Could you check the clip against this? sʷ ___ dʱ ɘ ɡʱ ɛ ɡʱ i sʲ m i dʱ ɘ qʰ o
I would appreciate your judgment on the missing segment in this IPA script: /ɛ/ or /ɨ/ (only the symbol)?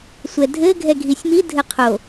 ɛ